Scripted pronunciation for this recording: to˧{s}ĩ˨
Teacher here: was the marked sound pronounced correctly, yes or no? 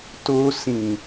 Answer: yes